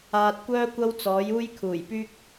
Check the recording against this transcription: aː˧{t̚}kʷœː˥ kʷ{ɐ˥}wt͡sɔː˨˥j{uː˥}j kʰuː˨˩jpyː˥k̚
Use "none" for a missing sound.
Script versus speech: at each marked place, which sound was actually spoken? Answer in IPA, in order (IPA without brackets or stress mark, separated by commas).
t̚, ɐ˥, uː˥